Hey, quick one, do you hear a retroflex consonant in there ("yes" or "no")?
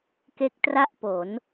no